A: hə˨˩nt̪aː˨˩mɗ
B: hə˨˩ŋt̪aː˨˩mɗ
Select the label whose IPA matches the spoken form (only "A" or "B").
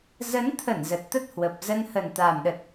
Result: A